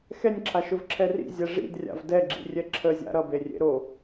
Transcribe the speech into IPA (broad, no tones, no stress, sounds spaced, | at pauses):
x ɛ nʲ ǁʰ a ʃ ɵ v ǁʰ ɛ r ḭ zʲ ɛ ʐ ḭ d rʲ a̰ v d ɛ ɡ͡ǁ ḭ rʲ ɛ ǁʰ ə zʲ a̰ ɾ ʌ b e rʲ ḛ ɾ o